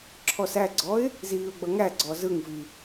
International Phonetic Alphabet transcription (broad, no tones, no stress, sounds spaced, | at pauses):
ǁʰ ɔ s æ ɡ͡ǀ ɔ ɪ̯ | z iː ʊ̯ ɡ͡b ʌ ŋ æ ɡ͡ǀ ɔ z ɯ ŋ v i